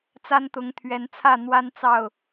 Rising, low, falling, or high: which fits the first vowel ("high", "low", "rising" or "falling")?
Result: high